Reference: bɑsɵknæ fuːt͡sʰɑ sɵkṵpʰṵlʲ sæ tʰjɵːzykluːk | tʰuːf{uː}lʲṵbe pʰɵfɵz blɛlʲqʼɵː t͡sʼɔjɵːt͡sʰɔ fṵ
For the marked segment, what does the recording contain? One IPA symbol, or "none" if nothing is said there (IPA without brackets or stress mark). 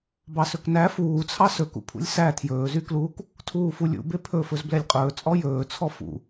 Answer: u